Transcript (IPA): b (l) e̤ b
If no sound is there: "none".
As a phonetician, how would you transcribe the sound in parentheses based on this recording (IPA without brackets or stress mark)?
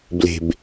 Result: l